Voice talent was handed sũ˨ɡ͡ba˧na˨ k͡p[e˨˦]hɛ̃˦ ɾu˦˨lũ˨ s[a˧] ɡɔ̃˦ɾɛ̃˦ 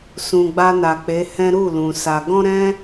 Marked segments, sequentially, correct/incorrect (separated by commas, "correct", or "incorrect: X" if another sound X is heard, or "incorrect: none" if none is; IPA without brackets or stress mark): correct, correct